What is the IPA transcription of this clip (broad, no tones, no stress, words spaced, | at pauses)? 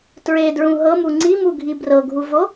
tɹedɹũ ɦɤmu ŋ͡ǀimuɡʱi brɤɡʱuvo